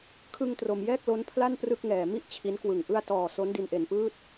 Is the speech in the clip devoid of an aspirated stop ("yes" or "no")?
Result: no